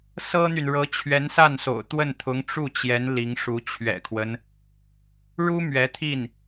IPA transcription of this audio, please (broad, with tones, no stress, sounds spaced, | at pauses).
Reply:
s ɤ˥ n̪ y˨ n ɻ ɤ˧˥ t͡ɕʰ ɥ ɛ˧˥ n s a˥˩ n s o̰˨˩ ʊ̯ t̪ w ə˥˩ n t̪ʰ ʊ˧˥ ŋ ʈ͡ʂ u˥˩ t͡ɕ j ɛ˧˥ n l i˧˥ ŋ ʂ u˧˥ t͡ɕʰ ɥ ɛ̰˨˩ kʰ w ə˦ n | ɻ u˥ m ɥ ɛ˧˥ t̪ʰ i˥˩ n